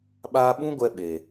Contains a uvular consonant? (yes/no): no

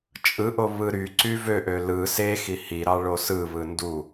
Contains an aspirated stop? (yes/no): no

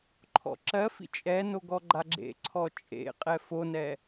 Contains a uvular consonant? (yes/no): yes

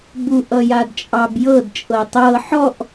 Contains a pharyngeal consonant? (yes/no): yes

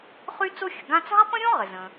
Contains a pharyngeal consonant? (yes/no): no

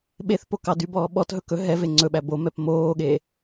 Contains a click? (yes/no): yes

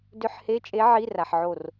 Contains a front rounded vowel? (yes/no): yes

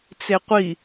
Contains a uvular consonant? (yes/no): yes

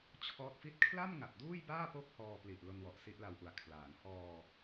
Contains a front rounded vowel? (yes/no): no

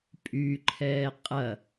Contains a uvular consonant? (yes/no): yes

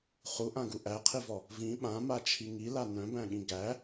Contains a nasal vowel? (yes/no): yes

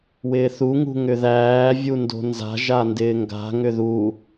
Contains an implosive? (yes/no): no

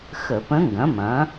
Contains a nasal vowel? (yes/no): yes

